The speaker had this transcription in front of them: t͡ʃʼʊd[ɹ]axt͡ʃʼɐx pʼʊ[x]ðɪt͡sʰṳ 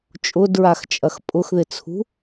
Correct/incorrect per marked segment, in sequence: correct, correct

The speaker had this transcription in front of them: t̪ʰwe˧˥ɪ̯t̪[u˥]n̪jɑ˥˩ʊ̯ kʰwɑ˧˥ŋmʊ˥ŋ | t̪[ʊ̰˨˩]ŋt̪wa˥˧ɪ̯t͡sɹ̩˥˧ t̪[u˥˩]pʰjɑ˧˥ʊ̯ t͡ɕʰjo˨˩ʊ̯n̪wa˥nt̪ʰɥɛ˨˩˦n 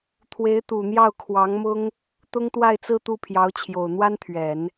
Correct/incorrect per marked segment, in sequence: incorrect: u˨˩, incorrect: ʊ˥, correct

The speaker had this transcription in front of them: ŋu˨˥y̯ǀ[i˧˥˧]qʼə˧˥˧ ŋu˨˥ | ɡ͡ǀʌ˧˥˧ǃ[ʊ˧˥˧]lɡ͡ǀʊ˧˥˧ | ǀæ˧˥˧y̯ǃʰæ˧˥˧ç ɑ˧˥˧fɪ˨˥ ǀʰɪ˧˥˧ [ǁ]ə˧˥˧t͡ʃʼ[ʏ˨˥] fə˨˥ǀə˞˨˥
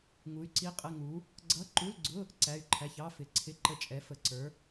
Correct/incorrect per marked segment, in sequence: correct, incorrect: u˧˥˧, incorrect: ǃ, incorrect: ɛ˨˥

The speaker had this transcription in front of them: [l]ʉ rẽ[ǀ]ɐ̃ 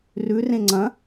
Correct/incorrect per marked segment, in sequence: incorrect: r, incorrect: ŋ͡ǀ

